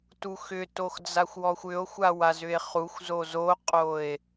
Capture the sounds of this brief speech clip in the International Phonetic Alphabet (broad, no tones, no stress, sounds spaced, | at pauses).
t u x ʏ t o x d͡z a xʷ w ɔ xʷ ʏ o̯ xʷ a w a z ʏ e̯ χ u xʷ z o z o qʼ o e̯